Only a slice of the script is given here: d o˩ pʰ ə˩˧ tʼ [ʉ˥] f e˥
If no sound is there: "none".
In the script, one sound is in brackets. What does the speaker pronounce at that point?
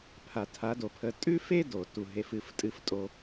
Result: ʉ˥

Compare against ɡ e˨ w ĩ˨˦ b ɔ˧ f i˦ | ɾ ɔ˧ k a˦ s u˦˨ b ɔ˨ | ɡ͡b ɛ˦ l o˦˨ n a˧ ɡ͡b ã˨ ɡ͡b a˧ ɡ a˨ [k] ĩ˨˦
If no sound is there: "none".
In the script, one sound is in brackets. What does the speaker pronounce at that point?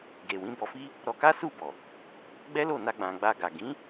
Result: ɡ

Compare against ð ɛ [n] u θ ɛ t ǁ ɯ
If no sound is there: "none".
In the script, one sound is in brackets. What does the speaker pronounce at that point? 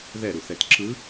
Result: ɾ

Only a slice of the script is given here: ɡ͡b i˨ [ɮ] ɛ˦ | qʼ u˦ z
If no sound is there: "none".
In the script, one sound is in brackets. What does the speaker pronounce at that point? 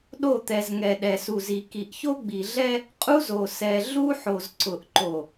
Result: ɮ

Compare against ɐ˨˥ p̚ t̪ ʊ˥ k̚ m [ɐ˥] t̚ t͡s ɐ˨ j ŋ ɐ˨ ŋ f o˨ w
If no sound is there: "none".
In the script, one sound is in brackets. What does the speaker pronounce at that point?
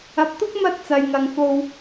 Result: ɐ˥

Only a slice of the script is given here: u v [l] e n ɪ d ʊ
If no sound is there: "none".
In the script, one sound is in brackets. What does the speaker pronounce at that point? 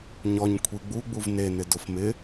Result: n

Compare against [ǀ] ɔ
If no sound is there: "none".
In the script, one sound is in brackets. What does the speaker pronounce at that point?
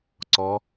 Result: ǀ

